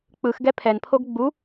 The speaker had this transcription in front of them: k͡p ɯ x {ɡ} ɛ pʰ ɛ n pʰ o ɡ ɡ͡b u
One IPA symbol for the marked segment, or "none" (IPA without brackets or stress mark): ɡ